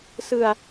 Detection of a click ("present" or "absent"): absent